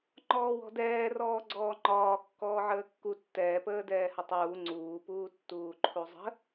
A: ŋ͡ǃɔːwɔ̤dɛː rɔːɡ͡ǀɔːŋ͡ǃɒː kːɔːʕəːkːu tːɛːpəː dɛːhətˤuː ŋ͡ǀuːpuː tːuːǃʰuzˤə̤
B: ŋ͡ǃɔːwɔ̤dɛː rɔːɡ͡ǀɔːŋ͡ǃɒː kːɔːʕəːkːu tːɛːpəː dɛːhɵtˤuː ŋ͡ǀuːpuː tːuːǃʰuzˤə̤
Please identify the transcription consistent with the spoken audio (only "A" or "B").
A